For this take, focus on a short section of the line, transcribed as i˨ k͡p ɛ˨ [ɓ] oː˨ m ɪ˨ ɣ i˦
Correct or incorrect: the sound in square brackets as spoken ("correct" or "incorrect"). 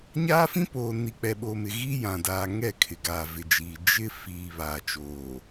correct